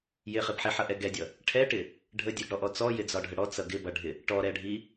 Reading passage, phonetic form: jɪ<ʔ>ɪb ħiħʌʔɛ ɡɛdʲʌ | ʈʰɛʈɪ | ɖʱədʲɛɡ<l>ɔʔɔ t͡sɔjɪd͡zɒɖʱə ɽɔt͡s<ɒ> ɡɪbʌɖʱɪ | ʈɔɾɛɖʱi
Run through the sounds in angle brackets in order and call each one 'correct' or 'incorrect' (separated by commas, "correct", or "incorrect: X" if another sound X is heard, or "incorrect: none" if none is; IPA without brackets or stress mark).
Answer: incorrect: χ, incorrect: ɽ, incorrect: ʌ